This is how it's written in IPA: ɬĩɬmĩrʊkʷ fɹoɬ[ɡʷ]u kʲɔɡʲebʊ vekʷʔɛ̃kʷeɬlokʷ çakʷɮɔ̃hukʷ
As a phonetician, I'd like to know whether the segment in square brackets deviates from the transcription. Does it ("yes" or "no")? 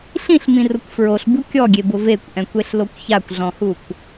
yes